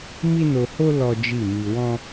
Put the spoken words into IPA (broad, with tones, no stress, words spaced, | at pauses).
mi˦no˧ho˦ lɔ˦d͡ʒi˦˨mi˧ wɔ̃˦